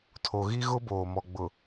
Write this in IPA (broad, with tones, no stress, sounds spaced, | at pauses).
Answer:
tʰ o˨ ɣ i˦ ɣ ʊ˦ b oː˨ m ɔ˨ ɡ͡b ʊ˨